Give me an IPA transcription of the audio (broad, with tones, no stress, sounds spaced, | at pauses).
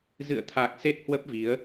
z ɨ̰˧˨ ə̯ t̪ʰ a˨˩ k̚ s e˦˥ t̚ h w ə˦˥ p̚ v i˨˦ ə̯